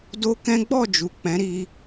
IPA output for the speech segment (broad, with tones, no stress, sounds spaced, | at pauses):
d o˦ k ɛ̃˦ ɡ͡b ɔ˦˨ d͡ʒ u˨ k͡p ɛ̃˨˦ ɾ i˧